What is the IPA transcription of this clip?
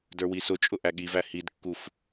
də˞wisʊt͡ʃʼʊ ʔæɠivæ hidkːuf

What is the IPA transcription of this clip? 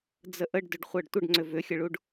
d͡zəʔəɖdʏɖ χʷɜɖtʷəɖŋ͡ǀʏ vʏxʲəɭuɖ

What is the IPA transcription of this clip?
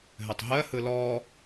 ɦɘtˤɦɜhɯ lɔ

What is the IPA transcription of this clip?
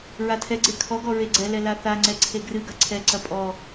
ɹatʰɛɡ͡ǀe kʰɔɡɔ ɹeɡ͡ǀɛlɛ laθaŋ͡ǀɛ ǀʰeɡrɨɡɐ ǀʰɛǀɐ pʼɔ

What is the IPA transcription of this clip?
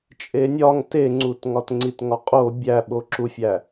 t͡ʃʼenʲɒŋ teŋ͡ǀut ŋɒtŋ͡ǀitŋɒqʼo bʲæɓoǁufʲæ

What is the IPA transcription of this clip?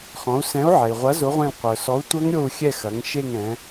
χɔ̃˩˧u̯sɛ̃˨˥u̯ʕɛ˩i̯ʁʷɐ˨˥ zʊ˨˥ʁʷẽ˦˨l qʷœ˩sɔ˨˥u̯ tʷœ˦˥ŋɾʲo˦˨u̯xʲɛ˦˨ xɐ˩˧ŋ ʃe˦˨ŋɛ̃˩˧

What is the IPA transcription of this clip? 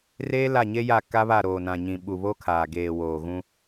reː˦ la˦˨ɲe˦ja˦˨ ka˦βa˦˨ ɾoː˨nã˨ɲĩ˨ ɓu˨βo˦kʰaː˨ ɡeː˨woː˨ɣũ˦

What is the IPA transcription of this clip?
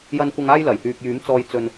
jɐ˨nkʷɐ˨ŋaː˧j lɐ˨˩jhyː˨k̚jyː˨˥mt͡sɔː˧j t͡sɵ˧n

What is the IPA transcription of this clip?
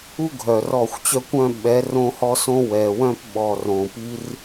u˦ɡʱœ˨ rɔ˦˨xʷt͡ɕœ˦kʷœ̃˦ ɓɛ˨˦ rõ˦hɔ˦sõ˦ wɛ˨wœ̃˦p ɓɔ˨r õ˨pi˦r

